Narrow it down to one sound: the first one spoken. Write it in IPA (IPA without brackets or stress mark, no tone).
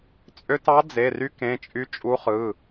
t͡sʼ